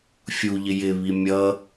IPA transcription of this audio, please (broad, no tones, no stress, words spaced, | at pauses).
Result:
fʲuʎɪ jɪβi mʲʌ